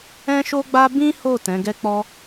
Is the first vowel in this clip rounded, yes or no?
no